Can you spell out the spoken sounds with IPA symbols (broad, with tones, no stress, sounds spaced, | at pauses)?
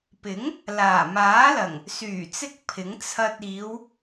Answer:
p ɪ˨˥ ŋ | l aː˨˩ m aː˨˥ l ɐ˨˩ ŋ | s yː˨˩ t͡s ɪ˧ k̚ pʰ ɪ˨˥ ŋ t͡sʰ ɐ˧ t̚ iː˨˧ w